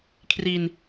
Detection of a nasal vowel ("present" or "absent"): absent